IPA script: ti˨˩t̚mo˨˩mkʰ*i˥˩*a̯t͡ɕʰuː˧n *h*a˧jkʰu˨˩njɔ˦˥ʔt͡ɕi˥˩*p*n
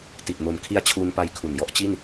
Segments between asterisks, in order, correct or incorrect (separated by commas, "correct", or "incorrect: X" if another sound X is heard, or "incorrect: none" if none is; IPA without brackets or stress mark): incorrect: i˦˥, incorrect: p, incorrect: none